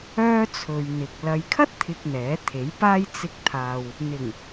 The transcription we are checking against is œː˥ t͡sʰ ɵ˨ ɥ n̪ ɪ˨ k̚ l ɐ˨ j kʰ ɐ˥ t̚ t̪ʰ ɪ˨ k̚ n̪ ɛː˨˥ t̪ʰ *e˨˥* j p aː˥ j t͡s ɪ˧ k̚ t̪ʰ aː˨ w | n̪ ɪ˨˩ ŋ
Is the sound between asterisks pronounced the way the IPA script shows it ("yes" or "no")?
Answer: yes